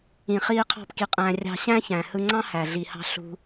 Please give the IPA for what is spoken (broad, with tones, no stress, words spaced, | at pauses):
ĩ˧χiː˦ qʰɑ̤˦pki˧qʼæ̃ː˧ rʲɑ̤˧ ɕæ̃˦çæ̃˨ hɯ˧ŋ͡ǀɑ̃˦ hæ˨ɮi˨hɑ̤˧ ɬṳ˧